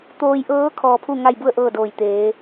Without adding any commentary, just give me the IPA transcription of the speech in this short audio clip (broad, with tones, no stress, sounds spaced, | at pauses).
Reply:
t̪ oː˧ j ʔ ɤː˧˥ kʰ ɔː˧ pʰ u˥˨ ŋ a˥˨ j b u˥˨ ə̯ ʔ ɤː˥˨ d oː˧˩ j t̪ eː˩˧